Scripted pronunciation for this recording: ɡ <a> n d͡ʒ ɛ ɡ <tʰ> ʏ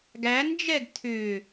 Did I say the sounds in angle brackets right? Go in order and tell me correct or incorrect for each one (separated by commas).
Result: incorrect, correct